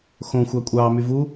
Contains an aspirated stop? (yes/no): no